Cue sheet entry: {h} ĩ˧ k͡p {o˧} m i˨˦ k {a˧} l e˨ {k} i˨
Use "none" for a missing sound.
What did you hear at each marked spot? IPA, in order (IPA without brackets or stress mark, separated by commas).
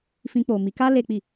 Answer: f, o˨, a˧, k͡p